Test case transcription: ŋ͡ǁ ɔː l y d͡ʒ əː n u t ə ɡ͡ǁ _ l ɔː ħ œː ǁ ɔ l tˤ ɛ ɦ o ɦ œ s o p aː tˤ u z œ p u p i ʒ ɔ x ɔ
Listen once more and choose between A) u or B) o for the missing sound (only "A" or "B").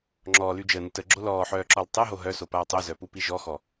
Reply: B